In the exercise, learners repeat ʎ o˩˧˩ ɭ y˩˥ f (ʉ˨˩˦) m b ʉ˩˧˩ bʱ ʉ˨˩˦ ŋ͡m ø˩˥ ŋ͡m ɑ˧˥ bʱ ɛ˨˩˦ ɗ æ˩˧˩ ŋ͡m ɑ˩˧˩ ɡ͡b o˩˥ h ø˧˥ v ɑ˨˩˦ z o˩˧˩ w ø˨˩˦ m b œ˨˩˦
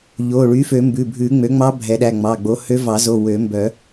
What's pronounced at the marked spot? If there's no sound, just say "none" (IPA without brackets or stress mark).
ø˨˩˦